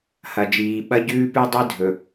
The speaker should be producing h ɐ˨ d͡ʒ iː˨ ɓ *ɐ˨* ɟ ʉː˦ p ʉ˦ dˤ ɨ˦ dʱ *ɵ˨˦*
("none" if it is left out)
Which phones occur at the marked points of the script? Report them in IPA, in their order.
ɐ˦, ɵ˨

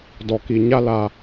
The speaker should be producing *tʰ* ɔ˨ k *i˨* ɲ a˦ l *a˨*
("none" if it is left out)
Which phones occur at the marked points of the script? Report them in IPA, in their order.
d, i˨, a˨

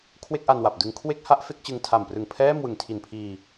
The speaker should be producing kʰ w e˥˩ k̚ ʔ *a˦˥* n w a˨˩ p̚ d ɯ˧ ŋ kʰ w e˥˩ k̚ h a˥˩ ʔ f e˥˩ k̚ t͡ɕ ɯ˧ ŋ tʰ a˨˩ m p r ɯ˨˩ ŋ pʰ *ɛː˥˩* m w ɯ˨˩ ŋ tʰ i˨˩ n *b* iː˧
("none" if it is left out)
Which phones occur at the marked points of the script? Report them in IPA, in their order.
a˧, ɛː˥˩, pʰ

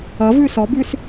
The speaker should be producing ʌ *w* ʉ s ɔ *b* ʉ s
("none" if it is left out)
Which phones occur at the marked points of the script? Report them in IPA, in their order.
v, b

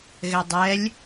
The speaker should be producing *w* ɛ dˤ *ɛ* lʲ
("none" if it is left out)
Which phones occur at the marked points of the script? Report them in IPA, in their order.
ɣ, ɛ

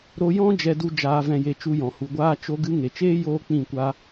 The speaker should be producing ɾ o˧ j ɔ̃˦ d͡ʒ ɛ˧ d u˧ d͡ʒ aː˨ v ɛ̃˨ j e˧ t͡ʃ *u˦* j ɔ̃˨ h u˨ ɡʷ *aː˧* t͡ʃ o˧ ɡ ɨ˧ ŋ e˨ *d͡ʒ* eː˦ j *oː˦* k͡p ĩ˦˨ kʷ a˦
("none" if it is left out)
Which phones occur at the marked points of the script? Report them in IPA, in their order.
u˧, aː˧, t͡ʃ, oː˦

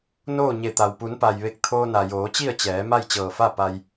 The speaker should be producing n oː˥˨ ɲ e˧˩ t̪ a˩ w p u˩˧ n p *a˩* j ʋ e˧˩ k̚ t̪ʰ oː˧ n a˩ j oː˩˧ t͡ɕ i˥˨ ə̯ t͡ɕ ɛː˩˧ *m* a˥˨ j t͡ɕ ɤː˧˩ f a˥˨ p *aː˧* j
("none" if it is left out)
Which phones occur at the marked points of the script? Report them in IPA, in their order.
a˩, m, a˧

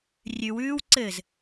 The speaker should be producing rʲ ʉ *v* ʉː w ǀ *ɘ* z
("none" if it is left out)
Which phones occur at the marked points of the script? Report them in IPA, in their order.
w, ɘ

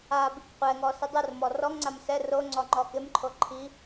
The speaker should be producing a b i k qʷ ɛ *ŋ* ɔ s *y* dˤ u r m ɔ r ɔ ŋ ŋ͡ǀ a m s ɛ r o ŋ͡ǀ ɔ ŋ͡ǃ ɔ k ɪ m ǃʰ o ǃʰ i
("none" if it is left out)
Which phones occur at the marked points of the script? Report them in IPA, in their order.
ŋ, ɪ

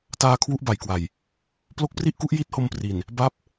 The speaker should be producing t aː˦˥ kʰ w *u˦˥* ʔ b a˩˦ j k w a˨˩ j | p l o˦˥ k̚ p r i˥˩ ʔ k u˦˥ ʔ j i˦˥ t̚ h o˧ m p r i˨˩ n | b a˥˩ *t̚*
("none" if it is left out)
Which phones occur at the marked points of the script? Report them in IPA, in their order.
u˥˩, p̚

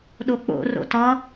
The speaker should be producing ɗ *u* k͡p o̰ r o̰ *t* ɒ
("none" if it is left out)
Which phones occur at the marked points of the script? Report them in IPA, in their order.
o, t

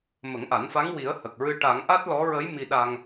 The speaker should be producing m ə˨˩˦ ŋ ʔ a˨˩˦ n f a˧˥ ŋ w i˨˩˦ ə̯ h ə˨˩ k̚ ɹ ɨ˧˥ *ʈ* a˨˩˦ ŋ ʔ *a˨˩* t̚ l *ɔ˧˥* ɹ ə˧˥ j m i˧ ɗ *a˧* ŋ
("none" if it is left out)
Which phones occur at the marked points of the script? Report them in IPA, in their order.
ʈ, a˦˥, ɔ˧˥, a˧

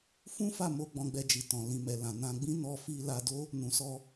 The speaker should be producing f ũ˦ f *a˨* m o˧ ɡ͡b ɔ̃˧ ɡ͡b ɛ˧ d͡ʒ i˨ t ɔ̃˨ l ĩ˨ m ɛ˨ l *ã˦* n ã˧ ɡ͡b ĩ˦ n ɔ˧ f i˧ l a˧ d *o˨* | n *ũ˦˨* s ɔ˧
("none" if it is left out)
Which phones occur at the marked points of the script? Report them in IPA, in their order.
a˦˨, ã˨, o˦, ũ˨

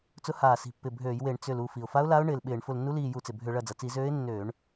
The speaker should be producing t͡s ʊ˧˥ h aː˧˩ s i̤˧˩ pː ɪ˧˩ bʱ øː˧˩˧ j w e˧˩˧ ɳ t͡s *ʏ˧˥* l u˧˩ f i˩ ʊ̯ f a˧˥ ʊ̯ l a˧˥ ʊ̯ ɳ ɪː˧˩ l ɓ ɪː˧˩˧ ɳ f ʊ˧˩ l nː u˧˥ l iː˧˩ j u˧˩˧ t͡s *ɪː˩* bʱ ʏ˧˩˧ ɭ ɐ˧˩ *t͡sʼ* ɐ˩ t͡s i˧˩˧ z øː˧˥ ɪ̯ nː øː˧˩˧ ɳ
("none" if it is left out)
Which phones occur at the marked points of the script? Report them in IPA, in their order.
ʏ˧˩, ɪ˩, d͡z

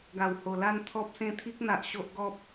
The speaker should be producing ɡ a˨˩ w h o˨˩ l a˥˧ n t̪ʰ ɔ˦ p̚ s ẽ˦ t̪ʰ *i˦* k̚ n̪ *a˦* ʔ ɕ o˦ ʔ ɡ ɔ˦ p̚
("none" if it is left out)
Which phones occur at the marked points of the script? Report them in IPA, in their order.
i˦, a˨

